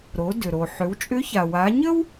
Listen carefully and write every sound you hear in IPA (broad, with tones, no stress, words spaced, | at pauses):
ɾo˩˧ dʏ˩ɾo˩ ħʏ˩˧wt͡ʃʼʏ˧˥ça˩ wa˩˧ɲə˥w